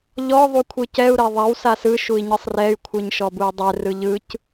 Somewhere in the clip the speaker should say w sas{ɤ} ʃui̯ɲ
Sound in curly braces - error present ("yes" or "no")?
yes